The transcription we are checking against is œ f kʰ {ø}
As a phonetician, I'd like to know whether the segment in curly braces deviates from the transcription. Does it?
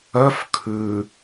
yes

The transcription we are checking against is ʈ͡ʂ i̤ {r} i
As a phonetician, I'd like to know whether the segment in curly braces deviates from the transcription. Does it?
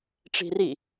no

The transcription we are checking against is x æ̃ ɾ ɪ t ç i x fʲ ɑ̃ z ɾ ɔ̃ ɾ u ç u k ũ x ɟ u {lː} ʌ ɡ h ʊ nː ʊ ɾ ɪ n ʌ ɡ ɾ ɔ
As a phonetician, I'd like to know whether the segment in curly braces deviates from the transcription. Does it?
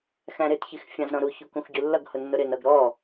no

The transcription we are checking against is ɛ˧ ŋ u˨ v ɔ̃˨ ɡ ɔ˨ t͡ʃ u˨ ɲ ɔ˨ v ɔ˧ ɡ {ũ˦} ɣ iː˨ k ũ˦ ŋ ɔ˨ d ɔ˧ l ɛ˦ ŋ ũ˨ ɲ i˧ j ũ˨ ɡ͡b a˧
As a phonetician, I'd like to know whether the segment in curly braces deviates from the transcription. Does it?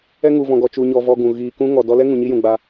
yes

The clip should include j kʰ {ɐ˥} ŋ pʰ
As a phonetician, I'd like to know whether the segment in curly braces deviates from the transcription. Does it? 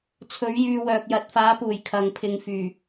yes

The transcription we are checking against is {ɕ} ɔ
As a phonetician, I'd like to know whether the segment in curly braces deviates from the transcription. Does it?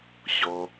no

